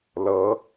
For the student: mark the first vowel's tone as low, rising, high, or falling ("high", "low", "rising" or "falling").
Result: rising